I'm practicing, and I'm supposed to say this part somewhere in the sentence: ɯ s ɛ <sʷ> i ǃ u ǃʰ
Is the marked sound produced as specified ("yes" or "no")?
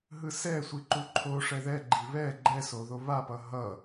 yes